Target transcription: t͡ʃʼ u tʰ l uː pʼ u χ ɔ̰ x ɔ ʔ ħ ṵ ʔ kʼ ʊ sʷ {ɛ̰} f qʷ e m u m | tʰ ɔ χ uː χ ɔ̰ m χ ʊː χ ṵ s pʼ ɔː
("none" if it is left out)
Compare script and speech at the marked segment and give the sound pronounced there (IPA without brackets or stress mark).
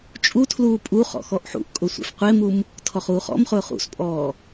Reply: ɛ̰